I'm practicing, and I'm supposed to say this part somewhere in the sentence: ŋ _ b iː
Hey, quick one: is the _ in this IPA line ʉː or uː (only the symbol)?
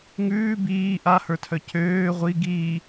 ʉː